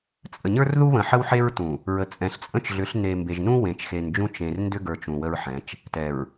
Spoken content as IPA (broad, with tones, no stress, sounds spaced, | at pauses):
t͡sʼ ə˨ ɲ ə˞˦ r ð u˦ β ə̃˨ ħ ə˦ w ħ e˦ ɹ t ũ˨ | ɹ ə˨ t͡sʼ ɛ̃˨ ɬ t͡sʼ ə̃˦ t͡ʃ ɮ ʏ˨˦ ɬ n e˨ m b e˨ ʒ n ũ˦ w ẽ˨ t͡ʃ x e˨ n d͡ʒ ũ˦ t͡ʃ ẽ˨ r n d ʏ˦ ɡ ə˞˨ t͡ʃ ũ˨ w ə˦ ɹ ħ ɛ̃˨˦ t͡ʃ | t ɛ˨ ɹ